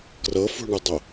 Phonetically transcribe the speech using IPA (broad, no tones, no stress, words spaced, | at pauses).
krɤfṳɳɨdˤo